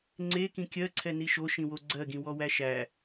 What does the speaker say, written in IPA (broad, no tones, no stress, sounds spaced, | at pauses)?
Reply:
ŋ͡ǀ e k ĩ kʲ ɜ ǀʰ ɛ n i ʃ o ʃ ĩ w o ɡ͡ǀ ɜ ɡ ĩ w ɔ w æ ʃ æ